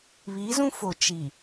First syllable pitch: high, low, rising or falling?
rising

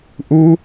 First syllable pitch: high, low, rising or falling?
high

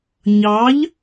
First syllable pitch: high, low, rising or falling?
rising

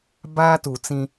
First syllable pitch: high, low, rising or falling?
high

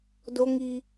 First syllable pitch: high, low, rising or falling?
high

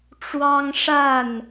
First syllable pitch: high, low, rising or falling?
high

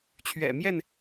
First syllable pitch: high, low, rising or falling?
low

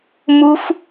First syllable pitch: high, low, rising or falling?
high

